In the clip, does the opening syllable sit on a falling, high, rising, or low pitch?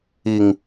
low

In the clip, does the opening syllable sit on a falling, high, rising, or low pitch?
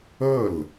falling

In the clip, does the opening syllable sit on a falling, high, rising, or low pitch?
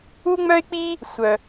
high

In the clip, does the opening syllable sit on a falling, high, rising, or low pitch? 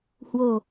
low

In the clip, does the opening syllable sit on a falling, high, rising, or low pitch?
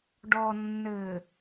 low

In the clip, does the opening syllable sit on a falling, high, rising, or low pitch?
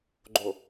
low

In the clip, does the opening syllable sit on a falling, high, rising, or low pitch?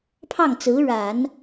falling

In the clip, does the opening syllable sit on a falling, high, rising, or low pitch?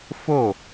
falling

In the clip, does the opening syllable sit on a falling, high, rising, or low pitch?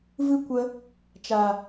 high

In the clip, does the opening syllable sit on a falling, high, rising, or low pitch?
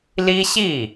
high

